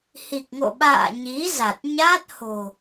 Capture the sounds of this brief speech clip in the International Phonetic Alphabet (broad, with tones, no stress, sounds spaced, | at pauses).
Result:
h i˨˩ k̚ ŋ o̰˧˨ ɓ a̰ː˧˨ ɲ i˨˦ z a˨˩ t̚ ɲ aː˦˥ t̚ h o̤˨˩